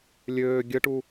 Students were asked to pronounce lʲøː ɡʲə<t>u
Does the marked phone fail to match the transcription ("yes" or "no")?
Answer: yes